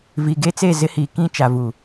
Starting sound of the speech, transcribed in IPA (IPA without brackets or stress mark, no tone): v